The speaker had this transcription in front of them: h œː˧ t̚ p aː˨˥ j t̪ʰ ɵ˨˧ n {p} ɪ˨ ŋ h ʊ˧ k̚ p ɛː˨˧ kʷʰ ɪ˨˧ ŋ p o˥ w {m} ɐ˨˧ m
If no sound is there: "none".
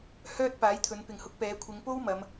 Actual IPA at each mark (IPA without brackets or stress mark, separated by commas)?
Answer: p, m